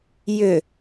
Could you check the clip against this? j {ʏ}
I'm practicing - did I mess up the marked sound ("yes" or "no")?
no